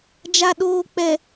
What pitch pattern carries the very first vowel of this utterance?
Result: low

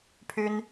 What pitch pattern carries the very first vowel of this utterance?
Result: high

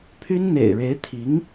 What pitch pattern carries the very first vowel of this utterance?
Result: high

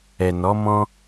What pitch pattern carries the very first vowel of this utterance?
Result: low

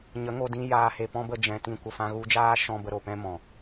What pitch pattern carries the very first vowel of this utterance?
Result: rising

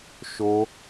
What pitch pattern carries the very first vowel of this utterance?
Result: high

